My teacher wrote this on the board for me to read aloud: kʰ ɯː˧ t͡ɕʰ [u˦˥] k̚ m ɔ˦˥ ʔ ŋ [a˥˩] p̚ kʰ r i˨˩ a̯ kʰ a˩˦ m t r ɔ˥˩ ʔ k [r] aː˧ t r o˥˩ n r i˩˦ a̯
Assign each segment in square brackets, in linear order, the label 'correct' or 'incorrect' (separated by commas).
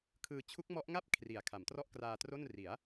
correct, correct, correct